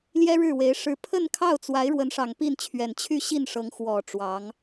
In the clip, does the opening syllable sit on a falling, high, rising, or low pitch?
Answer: high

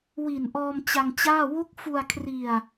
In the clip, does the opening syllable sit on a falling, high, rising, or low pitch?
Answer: low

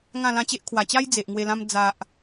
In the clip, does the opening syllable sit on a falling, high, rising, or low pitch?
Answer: falling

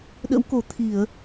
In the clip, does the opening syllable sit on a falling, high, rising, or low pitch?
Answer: rising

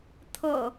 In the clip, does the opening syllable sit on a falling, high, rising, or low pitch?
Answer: low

